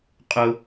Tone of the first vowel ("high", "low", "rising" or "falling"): high